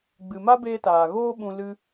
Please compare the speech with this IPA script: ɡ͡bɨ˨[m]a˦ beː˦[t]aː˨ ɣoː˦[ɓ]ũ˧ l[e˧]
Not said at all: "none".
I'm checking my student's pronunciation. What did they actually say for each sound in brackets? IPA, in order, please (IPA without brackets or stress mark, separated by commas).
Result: m, t, ɓ, ɨ˧